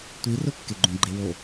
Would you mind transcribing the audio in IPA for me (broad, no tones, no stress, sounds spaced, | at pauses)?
tʷ i r ʊ kː e ɡ͡ǃ ũ ɡ͡ǃ e w o